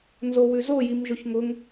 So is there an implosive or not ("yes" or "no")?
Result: no